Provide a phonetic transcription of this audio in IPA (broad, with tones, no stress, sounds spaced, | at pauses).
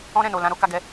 ɔ̃˦ ɾ ɛ̃˦˨ n o˨ l ã˧ ɾ o˦ k a˧ ɡ ɛ˧